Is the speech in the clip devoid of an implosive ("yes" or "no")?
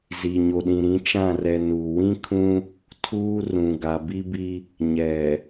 no